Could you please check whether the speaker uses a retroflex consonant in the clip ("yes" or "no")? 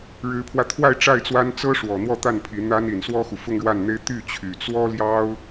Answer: yes